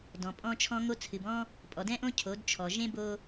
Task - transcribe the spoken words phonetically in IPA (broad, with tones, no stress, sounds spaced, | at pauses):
d ɔ̃˨ pʼ ɔ̃˦ t͡ʃʰ ɔ̃˦ ŋ o˦ t͡sʰ ɨ˨ b ɔ̃˦ | pʼ ɔ˨ d ɛ̃˦ ʔ õ˦ cʰ o˨˦ d t͡ʃʰ ɔ˨ ʒ ẽ˦ b o˦